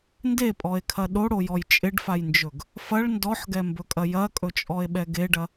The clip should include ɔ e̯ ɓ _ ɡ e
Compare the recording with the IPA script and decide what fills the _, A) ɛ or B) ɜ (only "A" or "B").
A